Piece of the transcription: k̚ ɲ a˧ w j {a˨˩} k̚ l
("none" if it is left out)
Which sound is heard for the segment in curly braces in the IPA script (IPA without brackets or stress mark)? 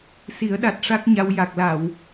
a˨˩